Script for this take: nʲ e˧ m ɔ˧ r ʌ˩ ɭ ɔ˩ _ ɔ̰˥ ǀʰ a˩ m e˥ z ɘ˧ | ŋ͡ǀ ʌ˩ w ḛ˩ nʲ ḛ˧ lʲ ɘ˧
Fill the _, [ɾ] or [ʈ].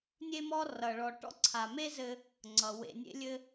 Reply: ʈ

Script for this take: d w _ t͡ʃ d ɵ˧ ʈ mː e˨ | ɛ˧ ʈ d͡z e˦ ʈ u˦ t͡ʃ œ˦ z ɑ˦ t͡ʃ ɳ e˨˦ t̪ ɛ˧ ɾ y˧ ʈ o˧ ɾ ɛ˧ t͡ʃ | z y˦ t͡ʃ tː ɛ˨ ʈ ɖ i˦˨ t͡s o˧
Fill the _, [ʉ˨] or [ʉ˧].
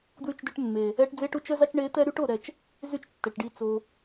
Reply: ʉ˧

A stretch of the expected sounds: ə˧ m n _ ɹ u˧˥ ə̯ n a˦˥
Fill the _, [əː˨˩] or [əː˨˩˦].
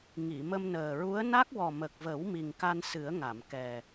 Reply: əː˨˩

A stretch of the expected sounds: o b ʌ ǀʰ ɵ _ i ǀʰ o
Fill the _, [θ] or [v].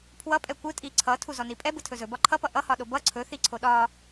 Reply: θ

